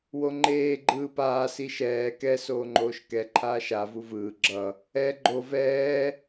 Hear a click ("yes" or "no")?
yes